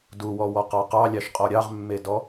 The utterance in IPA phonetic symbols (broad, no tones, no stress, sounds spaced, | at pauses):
d u w ɔ w ɔ q ɑ q ɑ lʲ ɑ ʃ qʼ ɔ ɾʲ ɑ ʁ mː e d ɔ